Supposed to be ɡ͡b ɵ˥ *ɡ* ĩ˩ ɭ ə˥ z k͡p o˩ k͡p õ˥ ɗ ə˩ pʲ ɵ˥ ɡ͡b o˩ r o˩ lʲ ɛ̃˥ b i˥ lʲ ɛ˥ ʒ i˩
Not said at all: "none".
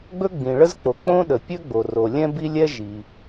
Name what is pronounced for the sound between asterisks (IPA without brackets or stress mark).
ɡ͡b